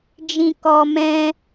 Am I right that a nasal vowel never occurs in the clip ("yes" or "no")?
no